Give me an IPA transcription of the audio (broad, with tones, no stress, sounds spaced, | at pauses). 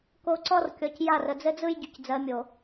k o˦ ǀ ɔ˦ r kʲ ɔ˨ c j a˦˨ r ə˨ d͡z ɘ˦ d͡z ɯ˦ j ɟ y˨ c d͡z ɜ˨˦ mʲ o˨